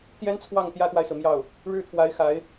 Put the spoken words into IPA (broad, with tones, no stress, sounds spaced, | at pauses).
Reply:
t̪ j ɛ˥ n t͡sʰ w ɑ˥˩ ŋ t̪ j ä˥ t̪ w a˨ ɪ̯ s ɹ̩˩ m j ɑ˥˩ ʊ̯ | ɻ ɻ̩˥˩ t̪ʰ w a˧˥ ɪ̯ x a˧˥ ɪ̯